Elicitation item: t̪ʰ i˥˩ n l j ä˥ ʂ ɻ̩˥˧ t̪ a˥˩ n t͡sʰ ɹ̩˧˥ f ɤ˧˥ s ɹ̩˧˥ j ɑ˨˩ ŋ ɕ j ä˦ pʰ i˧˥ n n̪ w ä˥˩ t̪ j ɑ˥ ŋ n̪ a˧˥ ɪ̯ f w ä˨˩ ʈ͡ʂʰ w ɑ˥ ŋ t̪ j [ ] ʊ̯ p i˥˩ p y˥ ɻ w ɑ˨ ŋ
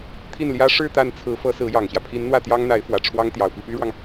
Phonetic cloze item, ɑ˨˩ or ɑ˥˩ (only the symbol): ɑ˨˩